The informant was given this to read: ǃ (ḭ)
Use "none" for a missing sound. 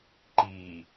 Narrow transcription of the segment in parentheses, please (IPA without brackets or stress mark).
i